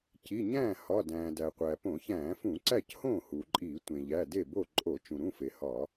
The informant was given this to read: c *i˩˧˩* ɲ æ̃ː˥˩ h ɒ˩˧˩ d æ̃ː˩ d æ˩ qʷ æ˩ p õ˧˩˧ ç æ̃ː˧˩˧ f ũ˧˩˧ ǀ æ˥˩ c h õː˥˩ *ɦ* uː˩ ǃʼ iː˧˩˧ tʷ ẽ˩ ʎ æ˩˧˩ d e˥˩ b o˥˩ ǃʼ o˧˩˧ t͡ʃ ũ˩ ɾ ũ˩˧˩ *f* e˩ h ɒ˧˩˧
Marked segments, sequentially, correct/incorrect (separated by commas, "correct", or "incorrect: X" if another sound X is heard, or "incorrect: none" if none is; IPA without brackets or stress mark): correct, incorrect: h, correct